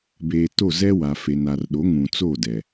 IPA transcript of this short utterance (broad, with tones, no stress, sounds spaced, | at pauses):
b eː˨ t o˦˨ z ɛ˦ w a˨ f e˨ n a˨ r ɗ o˨˦ ŋ ũ˨ t͡s o˦˨ d ɛ˨